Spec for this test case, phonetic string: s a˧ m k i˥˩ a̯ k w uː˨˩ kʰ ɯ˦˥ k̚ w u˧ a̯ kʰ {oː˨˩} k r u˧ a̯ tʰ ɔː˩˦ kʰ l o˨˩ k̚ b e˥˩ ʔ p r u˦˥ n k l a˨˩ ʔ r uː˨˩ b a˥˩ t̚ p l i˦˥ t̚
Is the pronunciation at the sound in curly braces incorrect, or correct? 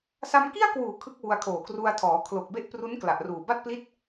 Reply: correct